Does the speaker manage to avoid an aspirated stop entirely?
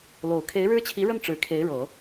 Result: no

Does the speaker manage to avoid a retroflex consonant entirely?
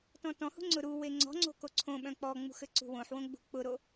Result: yes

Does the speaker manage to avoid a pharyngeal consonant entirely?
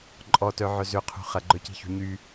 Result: no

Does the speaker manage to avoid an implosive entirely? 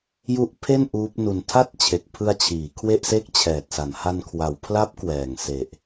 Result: yes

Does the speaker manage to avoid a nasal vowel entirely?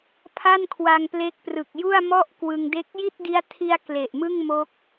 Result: yes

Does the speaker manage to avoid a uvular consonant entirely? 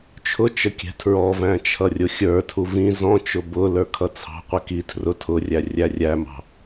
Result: no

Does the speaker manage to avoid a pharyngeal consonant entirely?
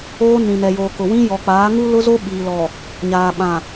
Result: yes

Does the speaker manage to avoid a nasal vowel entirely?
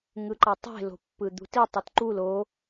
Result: yes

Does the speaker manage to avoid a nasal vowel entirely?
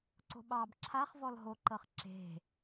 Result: yes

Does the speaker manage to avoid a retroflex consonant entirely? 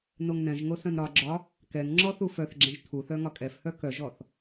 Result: yes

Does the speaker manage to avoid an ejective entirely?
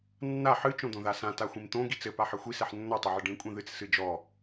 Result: no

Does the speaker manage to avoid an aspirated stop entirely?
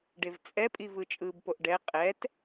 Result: yes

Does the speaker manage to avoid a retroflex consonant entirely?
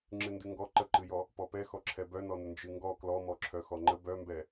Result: yes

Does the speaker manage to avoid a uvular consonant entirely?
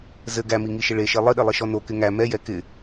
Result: yes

